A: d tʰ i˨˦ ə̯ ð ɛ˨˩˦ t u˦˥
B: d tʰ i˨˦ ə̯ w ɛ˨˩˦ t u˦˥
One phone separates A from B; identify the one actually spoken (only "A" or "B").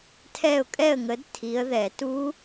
A